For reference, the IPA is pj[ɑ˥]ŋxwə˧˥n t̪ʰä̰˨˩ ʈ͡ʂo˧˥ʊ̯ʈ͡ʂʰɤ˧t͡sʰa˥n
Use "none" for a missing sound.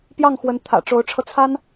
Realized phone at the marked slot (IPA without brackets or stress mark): ɑ˥˩